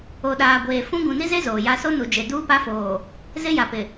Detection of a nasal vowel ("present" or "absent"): present